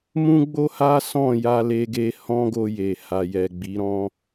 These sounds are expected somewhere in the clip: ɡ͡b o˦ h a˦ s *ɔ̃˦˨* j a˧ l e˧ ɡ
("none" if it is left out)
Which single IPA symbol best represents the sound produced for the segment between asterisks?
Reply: ɔ̃˦˨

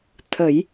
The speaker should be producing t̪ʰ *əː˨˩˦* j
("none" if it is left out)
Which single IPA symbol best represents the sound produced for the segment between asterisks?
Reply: ə˨˩˦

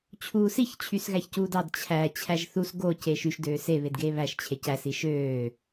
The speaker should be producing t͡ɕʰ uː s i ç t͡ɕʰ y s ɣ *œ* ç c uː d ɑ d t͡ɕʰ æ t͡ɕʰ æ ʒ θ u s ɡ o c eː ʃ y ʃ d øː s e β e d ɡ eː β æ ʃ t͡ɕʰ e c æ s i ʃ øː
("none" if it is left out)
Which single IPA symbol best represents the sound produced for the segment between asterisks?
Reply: æ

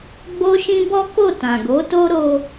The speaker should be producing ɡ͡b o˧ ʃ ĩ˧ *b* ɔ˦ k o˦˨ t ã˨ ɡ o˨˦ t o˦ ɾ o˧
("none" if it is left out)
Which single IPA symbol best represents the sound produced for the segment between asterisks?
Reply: b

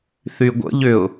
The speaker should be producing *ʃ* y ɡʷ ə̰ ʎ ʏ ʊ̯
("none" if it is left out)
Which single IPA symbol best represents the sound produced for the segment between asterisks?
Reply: θ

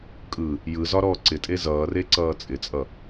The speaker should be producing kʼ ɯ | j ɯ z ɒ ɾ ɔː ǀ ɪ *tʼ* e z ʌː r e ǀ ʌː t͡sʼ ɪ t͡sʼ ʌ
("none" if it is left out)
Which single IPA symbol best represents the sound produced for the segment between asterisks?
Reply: tʼ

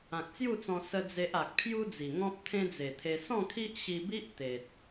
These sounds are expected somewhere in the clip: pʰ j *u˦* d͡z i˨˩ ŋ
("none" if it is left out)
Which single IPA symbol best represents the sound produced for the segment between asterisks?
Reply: u˦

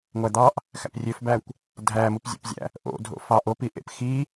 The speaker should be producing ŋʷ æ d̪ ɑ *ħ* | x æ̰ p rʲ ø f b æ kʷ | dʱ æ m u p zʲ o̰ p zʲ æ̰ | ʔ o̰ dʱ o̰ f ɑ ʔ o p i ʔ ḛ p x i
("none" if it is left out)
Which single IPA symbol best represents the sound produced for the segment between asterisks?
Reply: ʔ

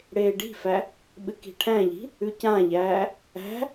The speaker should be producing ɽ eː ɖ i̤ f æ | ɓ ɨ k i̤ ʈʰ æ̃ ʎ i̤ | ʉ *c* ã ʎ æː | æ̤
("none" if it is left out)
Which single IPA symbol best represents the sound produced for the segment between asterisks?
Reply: c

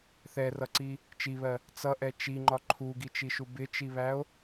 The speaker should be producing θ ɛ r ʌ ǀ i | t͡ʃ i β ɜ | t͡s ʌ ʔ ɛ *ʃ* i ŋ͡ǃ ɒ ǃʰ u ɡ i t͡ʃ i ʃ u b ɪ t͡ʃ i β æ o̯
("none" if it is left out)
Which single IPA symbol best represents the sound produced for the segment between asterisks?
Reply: t͡ʃ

